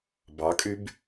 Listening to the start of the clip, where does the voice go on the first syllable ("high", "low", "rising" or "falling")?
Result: rising